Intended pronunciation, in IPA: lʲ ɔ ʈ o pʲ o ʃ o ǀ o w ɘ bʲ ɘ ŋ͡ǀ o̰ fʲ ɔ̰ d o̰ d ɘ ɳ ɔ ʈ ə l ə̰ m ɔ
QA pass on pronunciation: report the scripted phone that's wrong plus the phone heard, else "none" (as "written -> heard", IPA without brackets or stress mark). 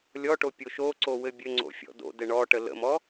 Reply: none